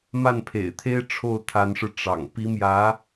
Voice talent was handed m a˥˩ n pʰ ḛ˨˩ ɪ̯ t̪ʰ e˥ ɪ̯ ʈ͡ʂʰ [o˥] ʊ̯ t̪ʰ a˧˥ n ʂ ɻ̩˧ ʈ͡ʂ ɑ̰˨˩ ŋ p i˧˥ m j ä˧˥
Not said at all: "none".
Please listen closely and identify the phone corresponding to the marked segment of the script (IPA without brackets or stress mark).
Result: o˥˩